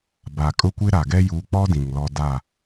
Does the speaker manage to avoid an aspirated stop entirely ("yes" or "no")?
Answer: yes